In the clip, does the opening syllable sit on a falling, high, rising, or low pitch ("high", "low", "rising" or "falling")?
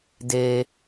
low